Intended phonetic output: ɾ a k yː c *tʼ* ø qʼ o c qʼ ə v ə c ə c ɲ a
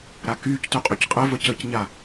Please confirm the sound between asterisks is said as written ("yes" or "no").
no